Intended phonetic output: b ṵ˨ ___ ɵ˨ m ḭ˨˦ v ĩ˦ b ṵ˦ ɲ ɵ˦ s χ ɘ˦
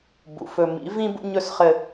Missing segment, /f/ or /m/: f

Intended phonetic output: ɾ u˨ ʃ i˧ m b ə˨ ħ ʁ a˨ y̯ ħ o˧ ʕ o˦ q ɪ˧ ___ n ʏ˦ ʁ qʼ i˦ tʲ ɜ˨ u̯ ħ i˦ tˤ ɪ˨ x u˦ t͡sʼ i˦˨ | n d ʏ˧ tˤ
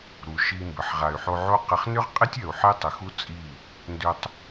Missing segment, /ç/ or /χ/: χ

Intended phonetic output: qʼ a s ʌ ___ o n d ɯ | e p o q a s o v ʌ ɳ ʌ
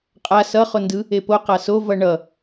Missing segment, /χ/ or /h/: χ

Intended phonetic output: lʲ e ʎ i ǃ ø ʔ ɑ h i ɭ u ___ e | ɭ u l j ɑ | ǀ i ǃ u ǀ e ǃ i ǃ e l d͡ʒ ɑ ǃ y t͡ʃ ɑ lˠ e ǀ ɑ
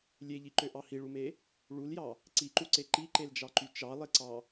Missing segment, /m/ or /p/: m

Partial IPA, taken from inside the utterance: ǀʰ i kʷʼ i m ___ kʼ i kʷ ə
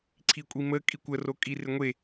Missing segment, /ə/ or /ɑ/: ə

